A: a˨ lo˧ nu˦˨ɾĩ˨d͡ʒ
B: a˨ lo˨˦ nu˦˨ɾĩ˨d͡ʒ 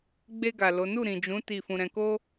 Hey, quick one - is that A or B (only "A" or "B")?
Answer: B